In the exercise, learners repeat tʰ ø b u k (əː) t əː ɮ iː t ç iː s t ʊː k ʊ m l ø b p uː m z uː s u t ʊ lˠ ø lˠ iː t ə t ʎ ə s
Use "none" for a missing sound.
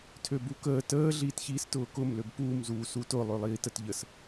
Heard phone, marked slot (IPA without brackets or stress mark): əː